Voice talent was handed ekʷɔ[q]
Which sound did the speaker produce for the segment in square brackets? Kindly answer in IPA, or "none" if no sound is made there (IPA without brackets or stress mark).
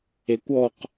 q